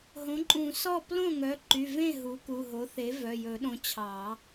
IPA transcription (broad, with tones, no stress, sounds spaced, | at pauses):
ɦ õ˩˥ ǃʼ ũ˨˩˦ s ɔ˥˩ p l õ˥˩ ŋ œ˩˥ ǃ y˩˧˩ v ẽ˥˩ ɦ u˩˥ k u˩˧˩ ɦ o˩˥ θ e˩˥ v œ˩˧˩ j ɵ˨˩˦ ɗ õ˩˥ t͡ɕʰ ɑ˨˩˦